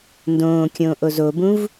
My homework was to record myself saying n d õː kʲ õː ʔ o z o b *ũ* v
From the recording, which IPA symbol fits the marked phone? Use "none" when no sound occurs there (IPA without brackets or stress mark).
ũ